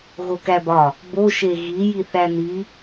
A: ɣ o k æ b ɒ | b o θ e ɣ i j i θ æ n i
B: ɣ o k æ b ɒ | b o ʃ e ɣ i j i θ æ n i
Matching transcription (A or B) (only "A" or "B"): B